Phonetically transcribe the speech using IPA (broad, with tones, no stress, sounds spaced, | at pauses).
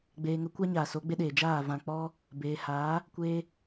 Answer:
ɡ͡b eː˨ ŋ ə˨˦ kʷ a˦ ɲ aː˨ s o˨˦ ɡ͡b e˦ ɗ eː˨ d͡ʒ aː˦˨ v ã˧ k͡p ɔ˦ | b eː˨ h aː˨˦ | kʷ eː˧